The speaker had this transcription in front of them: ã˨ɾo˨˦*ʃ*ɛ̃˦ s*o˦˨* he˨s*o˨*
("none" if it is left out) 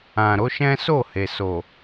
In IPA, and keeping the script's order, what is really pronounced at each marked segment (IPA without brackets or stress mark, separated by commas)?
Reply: ʃ, o˦˨, o˨